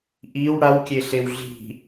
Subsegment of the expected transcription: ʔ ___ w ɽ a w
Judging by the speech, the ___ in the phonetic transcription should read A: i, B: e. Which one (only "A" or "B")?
A